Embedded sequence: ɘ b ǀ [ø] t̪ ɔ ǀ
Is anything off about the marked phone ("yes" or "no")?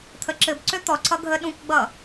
no